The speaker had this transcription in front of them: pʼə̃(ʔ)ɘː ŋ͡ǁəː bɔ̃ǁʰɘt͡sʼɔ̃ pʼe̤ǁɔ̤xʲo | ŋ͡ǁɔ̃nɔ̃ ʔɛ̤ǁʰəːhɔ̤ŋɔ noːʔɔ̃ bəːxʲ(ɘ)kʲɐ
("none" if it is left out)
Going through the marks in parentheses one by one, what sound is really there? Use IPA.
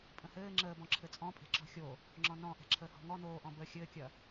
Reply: h, ɘː

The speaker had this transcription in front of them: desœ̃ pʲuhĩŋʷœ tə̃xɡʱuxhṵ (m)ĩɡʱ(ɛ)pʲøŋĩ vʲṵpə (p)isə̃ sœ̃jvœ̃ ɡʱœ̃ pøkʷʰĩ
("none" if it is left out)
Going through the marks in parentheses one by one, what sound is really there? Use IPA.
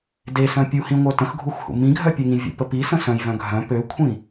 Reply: m, œ, p

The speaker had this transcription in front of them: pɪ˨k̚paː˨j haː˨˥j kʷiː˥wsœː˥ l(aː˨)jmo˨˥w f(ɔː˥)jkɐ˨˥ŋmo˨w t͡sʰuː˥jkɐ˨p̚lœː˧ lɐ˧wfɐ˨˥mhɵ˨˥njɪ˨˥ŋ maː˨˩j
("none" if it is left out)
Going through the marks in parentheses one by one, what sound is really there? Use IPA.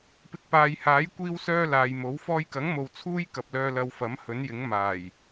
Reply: aː˨, ɔː˧

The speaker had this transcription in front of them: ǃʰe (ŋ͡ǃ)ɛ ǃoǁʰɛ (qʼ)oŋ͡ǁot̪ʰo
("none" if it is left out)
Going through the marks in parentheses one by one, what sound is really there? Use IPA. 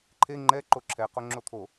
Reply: ŋ͡ǃ, q

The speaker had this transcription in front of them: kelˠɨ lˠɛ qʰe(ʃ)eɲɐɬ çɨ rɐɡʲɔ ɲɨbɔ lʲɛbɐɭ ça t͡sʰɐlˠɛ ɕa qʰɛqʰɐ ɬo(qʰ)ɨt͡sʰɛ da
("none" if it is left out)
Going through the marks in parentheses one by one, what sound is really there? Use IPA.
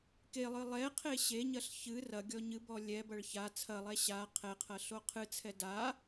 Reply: ɕ, qʰ

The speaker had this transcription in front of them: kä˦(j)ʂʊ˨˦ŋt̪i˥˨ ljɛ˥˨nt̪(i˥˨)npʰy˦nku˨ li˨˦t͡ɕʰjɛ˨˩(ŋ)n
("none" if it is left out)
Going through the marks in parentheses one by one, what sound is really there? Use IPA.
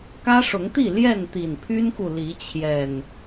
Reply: none, i˨˩, none

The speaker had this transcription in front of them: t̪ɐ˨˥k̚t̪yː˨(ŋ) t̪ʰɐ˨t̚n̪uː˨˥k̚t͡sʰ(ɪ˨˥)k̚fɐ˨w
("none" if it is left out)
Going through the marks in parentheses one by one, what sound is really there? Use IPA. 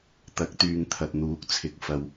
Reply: ŋ, ɪ˨˥

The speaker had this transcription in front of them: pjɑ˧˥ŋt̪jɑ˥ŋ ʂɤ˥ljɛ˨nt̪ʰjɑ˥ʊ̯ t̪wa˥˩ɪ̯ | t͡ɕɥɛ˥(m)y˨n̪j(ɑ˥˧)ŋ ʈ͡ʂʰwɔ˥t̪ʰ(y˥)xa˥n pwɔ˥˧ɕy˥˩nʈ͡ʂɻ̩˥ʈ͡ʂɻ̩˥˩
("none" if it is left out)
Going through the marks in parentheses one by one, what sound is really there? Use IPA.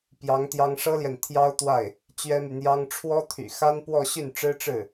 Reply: m, ɑ˥, y̰˨˩

